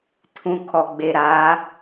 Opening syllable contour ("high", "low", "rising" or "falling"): low